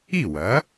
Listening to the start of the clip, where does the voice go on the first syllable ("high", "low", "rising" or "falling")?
falling